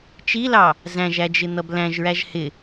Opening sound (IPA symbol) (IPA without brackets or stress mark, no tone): t͡ʃ